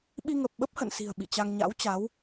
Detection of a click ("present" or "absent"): absent